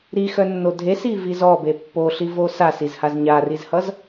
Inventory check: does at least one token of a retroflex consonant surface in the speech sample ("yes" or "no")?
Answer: no